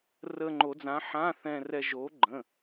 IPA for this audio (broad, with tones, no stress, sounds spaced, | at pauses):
r ə˧ ŋ͡ǃ o˨˩˦ d͡z ã˨˥ ħ ã˧˥˧ θ ɛ̃˧ r ɛ˧ ʒ o˨˥ ɡ͡ǃ ə̃˩˧˩